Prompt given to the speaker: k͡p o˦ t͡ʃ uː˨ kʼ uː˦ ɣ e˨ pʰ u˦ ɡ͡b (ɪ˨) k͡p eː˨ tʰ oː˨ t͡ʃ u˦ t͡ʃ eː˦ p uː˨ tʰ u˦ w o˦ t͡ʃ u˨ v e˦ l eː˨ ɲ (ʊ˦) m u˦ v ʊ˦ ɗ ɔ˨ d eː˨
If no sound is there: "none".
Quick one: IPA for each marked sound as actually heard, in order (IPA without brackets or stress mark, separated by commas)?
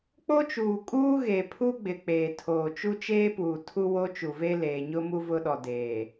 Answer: ɪ˨, ʊ˦